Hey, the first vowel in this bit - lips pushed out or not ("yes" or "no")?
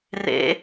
no